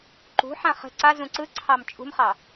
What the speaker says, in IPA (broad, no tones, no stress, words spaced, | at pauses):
ǃṳħã χə̤ ǀazũ ǀɯǀʰɑm t͡ʃʼṳmχɑ